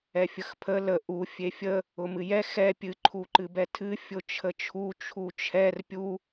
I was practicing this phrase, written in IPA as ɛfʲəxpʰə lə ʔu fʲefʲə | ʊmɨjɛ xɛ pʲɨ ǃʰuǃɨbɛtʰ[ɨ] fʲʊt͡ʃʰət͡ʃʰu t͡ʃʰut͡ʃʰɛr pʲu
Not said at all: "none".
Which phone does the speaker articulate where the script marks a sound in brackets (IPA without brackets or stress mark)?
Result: ɨ